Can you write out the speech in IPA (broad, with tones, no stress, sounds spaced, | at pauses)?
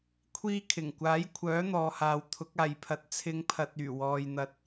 kʷʰ iː˧ kʰ ɪ˨˩ ŋ kʷ aː˨˥ j kʷʰ œː˨˥ n̪ ɔː˨ h aː˨ w t̪ʰ ʊ˨˥ k̚ aː˨ j pʰ ɐ˨˥ t̚ t͡sʰ ɪ˨˧ ŋ pʰ ɐ˨ t̚ yː˨˩ w ɔː˨ j n̪ ɐ˧ t̚